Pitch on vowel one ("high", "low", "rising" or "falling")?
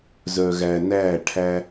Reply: low